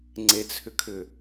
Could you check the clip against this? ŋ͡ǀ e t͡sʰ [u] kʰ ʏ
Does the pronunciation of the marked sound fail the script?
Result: yes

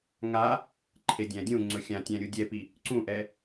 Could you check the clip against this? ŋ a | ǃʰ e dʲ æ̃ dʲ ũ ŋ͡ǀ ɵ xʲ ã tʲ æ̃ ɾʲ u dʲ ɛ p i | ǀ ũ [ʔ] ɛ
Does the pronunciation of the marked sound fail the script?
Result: no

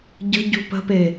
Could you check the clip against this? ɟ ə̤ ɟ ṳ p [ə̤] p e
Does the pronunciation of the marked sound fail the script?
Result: no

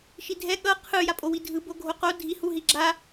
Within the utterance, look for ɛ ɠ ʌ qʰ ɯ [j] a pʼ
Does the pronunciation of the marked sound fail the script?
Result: no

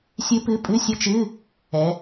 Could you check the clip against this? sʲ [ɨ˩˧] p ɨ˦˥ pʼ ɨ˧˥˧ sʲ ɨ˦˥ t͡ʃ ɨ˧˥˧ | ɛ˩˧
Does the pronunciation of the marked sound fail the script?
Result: yes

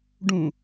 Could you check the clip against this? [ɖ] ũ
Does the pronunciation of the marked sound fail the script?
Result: no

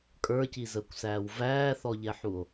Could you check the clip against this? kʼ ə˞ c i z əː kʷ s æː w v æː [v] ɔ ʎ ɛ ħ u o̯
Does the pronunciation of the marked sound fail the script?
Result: yes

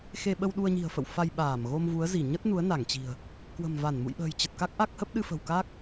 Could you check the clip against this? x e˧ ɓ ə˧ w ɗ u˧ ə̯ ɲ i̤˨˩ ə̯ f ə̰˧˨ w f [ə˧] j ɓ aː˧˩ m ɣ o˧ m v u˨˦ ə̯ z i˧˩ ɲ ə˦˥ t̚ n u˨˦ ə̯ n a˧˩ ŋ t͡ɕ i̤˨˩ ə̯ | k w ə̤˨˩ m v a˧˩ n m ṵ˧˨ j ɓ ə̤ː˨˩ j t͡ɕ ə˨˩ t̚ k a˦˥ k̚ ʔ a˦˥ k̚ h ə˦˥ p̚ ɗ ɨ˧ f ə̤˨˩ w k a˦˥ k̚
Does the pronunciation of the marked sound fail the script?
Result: yes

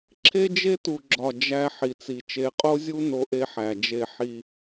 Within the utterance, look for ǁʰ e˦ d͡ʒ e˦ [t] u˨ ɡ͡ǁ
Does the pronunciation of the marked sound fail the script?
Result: no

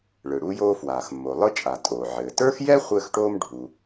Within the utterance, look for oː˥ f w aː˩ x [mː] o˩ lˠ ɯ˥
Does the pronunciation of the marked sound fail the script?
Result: no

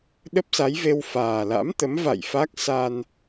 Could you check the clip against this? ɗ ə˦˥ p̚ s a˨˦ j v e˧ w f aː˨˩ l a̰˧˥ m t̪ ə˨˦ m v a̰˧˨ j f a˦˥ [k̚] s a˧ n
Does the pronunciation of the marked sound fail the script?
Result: no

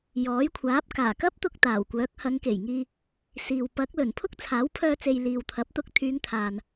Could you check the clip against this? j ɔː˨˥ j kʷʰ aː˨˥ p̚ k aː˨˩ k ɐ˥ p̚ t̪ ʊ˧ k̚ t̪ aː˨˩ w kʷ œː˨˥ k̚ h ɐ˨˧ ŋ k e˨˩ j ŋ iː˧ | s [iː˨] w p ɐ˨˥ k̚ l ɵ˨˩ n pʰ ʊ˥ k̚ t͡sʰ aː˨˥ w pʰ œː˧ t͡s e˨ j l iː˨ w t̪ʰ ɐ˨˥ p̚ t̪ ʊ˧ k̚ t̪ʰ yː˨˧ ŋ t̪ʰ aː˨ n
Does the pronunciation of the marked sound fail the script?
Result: no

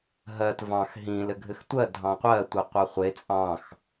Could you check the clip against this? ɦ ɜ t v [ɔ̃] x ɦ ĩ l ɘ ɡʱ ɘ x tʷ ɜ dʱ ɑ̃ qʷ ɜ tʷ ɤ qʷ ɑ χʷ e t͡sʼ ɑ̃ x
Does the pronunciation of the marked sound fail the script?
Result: yes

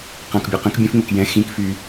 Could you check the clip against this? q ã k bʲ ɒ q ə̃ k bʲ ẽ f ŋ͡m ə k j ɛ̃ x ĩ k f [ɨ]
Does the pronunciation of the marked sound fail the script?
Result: yes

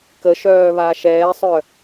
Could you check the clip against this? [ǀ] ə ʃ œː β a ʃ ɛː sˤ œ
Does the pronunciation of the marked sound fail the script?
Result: yes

